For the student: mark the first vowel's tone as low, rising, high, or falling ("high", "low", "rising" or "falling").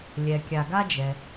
low